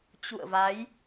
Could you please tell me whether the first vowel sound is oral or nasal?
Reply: oral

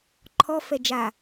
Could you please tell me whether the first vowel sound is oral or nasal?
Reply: oral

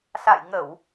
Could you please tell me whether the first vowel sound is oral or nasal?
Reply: oral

